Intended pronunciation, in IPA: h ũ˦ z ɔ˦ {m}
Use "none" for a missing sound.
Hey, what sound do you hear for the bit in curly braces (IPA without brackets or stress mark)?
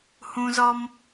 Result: m